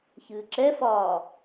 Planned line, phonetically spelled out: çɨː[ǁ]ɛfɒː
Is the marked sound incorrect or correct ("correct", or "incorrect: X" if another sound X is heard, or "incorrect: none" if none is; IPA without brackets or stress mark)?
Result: correct